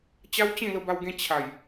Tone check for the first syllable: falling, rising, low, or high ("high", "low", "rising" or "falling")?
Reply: high